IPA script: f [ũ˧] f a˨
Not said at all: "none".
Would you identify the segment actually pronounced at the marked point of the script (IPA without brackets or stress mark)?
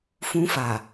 ũ˧